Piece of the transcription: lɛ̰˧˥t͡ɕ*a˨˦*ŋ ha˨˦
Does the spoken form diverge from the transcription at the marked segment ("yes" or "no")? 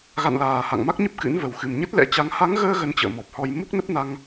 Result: no